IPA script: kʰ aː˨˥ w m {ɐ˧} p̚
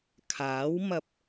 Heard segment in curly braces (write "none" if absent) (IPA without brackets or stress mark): ɐ˧